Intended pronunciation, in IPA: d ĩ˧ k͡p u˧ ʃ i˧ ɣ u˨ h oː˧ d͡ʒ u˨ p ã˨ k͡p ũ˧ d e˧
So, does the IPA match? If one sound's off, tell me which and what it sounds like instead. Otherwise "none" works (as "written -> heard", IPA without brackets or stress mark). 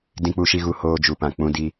e˧ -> i˧